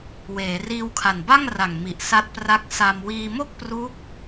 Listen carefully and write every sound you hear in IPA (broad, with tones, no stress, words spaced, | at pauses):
weː˩˦riː˧wkʰa˨˩n ba˥˩ŋra˨˩ŋ mi˨˩ʔsa˦˥t̚pra˦˥k̚ sa˧m wiː˧mo˥˩k̚ pru˦˥k̚